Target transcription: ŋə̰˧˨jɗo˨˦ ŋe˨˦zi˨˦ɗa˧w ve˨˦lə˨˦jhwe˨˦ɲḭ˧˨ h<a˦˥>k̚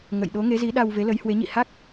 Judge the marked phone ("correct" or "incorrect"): correct